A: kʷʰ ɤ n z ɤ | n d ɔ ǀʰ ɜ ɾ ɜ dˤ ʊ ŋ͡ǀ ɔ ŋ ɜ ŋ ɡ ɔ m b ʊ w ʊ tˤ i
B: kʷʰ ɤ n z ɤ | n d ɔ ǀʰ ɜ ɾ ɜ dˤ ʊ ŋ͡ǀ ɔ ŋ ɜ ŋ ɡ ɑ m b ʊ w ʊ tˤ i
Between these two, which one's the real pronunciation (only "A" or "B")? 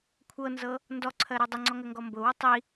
A